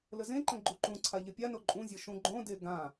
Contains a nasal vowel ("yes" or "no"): yes